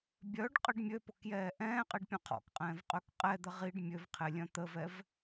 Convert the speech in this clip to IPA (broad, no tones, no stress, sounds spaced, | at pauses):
bʲ œ ɖ qʼ ə ɖ mʲ ø p ʊ k j ɛː ʔ ɛ̃ː qʼ i ɖ pʲ œ̃ qʰ ɔ̰ k qʼ ɛ̃ː v qʼ ø k qʼ ɛ d̪ ə ʁ i ɖ mʲ ø v qʰ e lʲ œ̃ t̪ ə v ɛ v